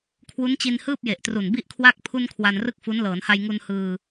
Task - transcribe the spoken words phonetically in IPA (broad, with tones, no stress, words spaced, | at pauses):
kʰwu˦˥nt͡ɕi˧n hɯː˥˩p̚je˨˩ʔtru˨˩n bi˥˩ʔkʰwa˥˩k̚ pʰu˧n kʰwa˧nrɯ˥˩k̚fu˦˥n lɤː˩˦nha˧jŋu˧n hɯː˧